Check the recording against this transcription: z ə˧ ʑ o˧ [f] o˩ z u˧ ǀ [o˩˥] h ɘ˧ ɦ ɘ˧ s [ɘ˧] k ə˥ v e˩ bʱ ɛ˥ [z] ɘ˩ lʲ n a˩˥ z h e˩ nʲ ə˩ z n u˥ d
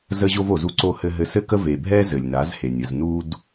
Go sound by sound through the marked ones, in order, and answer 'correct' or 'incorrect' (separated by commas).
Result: incorrect, incorrect, incorrect, correct